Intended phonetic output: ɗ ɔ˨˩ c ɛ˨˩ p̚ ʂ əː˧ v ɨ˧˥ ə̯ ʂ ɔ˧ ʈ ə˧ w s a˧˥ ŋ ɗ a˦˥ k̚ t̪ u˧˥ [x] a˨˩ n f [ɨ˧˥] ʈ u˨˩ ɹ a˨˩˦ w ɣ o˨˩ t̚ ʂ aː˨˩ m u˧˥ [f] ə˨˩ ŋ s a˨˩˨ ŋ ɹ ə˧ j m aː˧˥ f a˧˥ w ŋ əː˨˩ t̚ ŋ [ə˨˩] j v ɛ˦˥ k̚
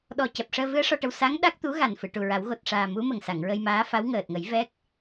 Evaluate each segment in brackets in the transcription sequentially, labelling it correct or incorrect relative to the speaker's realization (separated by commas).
incorrect, incorrect, incorrect, incorrect